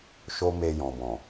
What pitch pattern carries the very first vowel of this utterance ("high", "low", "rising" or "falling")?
high